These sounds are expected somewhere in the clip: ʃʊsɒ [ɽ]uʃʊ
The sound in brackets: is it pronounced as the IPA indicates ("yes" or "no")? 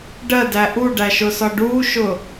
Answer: no